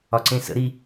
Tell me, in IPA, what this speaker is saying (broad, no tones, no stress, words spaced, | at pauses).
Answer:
ɒǀẽsə̰ ɾi